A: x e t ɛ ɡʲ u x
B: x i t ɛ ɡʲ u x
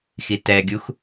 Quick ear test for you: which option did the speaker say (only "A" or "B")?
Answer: B